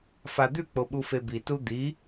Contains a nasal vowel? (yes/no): no